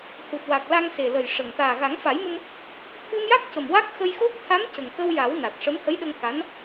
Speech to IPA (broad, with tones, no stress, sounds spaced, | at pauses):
h u˨˩ t̚ w a˨˩ k̚ l a˧ ŋ s e˨˩ l ə˨˩ j ʂ ə˨˩ ŋ t̪ aː˨˩ ɣ a˨˩˦ ŋ f a˨˩˦ j m ə˧ m | t̪ʰ ɨ˧ m j a˦˥ k̚ c ə˨˩ m w a˦˥ k̚ x ə˧ j x o˦˥ k̚ t̪ʰ a˧˥ m c ə˨˩ ŋ k ə˧ w j a˨˩˦ w n a˨˩ t̚ ʂ ə˧˥ m h ə˧˥ j ɗ ə˧ ŋ k a˧˥ n